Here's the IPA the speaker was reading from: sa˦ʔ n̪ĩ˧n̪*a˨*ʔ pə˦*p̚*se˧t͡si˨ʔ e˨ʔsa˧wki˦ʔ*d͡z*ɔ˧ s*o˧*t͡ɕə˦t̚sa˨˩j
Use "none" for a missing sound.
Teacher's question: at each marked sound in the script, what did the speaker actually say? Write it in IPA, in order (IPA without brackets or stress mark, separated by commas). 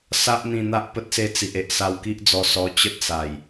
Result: a˦, t̚, d͡z, ɔ˧